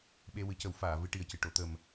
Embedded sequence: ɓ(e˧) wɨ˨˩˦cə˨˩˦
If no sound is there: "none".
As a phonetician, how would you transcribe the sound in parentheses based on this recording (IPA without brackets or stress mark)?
e˧